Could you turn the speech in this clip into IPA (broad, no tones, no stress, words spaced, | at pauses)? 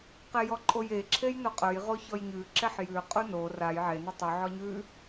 qejɔǃʼoje ǁʰejnoqʼɵj ʁoçɔjɲʉ ǁɛħjʉ qʼuno raj ʕe nutˤʉ ʕɔɲʉ